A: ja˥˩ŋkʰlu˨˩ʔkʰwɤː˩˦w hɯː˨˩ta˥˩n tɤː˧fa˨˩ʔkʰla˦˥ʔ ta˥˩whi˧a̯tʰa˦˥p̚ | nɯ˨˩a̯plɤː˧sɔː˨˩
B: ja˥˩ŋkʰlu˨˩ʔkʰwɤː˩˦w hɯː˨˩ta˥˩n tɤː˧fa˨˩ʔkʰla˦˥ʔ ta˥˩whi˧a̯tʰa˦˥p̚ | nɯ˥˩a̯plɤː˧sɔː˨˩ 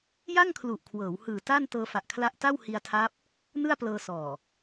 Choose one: B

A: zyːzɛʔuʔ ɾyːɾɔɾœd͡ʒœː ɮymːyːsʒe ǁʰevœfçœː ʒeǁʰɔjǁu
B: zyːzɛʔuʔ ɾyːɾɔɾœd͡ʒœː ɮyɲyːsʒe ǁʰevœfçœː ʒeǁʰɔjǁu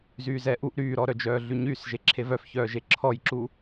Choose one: B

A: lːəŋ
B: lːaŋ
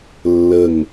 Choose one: A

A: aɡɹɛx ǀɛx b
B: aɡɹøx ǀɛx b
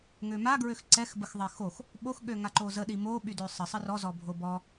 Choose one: B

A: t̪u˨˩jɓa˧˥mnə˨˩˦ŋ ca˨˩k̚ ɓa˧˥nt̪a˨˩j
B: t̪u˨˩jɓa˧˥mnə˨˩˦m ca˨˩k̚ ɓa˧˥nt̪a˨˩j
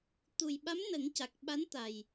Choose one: A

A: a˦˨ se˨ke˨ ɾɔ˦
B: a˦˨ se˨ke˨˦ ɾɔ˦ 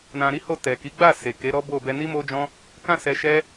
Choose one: B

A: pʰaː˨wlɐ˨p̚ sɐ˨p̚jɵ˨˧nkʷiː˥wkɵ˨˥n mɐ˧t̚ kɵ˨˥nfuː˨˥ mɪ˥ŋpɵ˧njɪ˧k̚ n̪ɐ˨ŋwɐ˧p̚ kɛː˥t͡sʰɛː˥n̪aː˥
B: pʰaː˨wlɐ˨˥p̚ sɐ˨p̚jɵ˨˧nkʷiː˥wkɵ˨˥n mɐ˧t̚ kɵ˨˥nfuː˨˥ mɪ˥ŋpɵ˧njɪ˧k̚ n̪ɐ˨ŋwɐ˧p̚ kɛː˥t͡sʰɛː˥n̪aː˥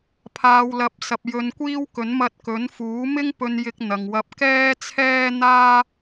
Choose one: B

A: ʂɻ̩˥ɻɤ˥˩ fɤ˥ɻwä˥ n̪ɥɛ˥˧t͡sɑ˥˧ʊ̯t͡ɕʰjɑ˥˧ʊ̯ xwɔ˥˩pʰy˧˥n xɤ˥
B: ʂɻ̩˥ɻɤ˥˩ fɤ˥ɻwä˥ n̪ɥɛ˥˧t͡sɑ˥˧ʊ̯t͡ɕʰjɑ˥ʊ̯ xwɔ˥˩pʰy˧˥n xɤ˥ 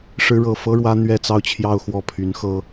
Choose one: A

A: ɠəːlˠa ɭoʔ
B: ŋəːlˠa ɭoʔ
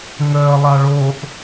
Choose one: B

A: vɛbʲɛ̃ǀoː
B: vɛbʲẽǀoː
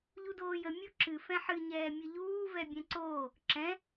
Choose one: A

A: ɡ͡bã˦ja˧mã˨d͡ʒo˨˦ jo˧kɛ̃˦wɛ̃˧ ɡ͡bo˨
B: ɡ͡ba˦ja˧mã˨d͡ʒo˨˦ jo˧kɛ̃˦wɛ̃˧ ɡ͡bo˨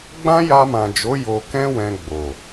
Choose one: A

